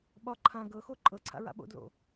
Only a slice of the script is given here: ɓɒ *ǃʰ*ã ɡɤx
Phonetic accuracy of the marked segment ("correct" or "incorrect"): correct